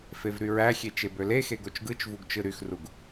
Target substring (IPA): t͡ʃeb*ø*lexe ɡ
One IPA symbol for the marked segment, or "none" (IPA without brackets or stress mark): ø